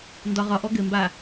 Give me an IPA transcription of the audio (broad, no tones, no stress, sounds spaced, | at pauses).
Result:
n d ɒ ʁ ɒ ʔ ɔ ɡ ɘ m b a